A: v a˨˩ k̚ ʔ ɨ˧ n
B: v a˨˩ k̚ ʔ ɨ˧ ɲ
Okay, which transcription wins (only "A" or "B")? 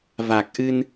A